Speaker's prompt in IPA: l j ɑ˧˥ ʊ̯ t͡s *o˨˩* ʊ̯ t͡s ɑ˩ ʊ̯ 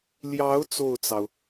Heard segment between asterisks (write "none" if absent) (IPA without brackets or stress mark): o˥˩